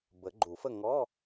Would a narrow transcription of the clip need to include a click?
yes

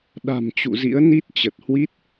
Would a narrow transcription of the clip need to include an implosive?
yes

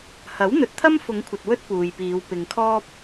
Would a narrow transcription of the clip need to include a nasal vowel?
no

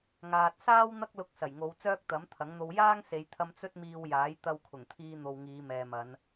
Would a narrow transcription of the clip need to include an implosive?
no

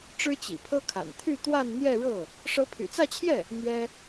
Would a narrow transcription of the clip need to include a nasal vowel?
no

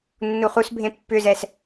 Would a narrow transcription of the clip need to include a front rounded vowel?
yes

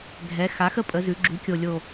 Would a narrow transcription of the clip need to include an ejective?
yes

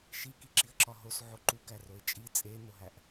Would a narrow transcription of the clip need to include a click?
yes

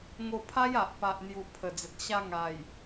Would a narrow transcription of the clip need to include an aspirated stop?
yes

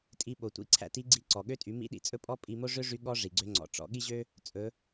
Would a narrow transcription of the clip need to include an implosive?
yes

